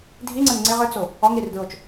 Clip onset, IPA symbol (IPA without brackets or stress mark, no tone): dʱ